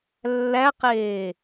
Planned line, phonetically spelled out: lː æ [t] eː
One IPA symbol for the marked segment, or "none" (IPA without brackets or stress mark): q